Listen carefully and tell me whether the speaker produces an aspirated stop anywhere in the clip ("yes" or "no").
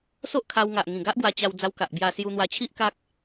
yes